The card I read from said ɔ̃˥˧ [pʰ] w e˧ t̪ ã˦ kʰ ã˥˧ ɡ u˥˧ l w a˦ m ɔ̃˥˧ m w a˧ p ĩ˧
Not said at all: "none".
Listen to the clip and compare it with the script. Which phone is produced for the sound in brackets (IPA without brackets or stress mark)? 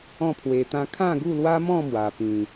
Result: pʰ